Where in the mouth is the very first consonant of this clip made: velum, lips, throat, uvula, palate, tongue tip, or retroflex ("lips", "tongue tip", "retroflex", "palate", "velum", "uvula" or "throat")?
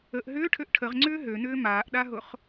throat